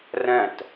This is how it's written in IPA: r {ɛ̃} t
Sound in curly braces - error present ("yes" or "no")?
no